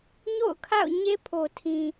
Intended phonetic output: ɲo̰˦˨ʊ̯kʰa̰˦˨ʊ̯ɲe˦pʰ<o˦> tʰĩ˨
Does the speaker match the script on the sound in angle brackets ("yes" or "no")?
no